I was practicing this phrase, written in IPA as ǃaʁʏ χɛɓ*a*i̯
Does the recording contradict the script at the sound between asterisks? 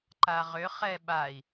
no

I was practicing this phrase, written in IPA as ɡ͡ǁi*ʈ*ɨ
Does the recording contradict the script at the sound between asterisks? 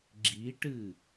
no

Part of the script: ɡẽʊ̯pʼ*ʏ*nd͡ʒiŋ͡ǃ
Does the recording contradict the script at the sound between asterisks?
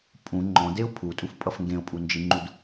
yes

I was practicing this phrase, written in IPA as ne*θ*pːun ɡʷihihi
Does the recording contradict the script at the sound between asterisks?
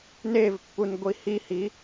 yes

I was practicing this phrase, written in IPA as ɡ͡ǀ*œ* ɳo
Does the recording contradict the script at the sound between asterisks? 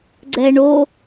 yes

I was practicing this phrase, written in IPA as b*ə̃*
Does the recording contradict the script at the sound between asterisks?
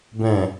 yes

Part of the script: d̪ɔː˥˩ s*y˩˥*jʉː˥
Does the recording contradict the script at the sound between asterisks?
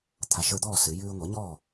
yes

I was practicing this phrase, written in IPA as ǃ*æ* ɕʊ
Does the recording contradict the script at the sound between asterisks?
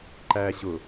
no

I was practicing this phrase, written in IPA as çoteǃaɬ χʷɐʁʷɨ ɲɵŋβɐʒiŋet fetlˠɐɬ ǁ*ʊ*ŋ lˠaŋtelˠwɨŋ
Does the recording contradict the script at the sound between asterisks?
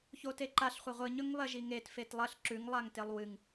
yes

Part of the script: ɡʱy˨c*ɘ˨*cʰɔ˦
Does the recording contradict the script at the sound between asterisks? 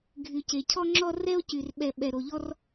yes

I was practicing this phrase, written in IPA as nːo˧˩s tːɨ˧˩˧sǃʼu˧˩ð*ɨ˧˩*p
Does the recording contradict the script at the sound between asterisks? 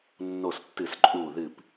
no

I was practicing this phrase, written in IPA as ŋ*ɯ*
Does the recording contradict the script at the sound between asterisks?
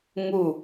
yes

